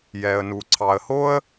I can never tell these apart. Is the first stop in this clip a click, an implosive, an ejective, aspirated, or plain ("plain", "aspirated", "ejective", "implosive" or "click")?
click